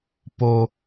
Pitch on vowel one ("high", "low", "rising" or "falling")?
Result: low